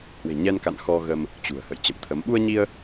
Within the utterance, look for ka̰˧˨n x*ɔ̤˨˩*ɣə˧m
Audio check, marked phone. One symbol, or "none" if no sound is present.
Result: ɔ˧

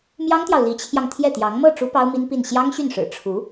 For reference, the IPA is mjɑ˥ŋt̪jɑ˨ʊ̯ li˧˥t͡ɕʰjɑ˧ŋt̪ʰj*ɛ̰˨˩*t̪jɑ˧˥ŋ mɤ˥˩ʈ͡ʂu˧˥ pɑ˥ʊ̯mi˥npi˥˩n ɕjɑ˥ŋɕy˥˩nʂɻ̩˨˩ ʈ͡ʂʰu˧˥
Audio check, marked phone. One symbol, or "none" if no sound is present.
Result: ɛ˥˩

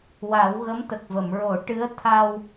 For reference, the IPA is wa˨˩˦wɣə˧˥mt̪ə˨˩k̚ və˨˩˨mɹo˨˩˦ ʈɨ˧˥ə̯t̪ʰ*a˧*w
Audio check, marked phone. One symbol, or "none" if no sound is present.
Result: a˧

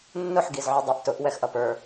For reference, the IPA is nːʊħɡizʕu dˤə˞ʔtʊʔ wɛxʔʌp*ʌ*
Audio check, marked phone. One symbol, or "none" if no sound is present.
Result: ə˞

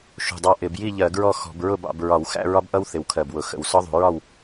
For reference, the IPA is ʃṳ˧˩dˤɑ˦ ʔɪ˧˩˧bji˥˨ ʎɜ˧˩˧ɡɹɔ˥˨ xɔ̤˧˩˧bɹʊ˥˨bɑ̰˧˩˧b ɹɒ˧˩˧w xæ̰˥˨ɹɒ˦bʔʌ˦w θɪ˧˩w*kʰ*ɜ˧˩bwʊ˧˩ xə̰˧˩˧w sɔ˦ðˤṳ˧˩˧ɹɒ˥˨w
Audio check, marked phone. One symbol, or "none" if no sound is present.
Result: kʰ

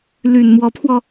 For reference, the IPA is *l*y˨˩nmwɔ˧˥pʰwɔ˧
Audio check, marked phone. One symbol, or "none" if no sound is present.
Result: l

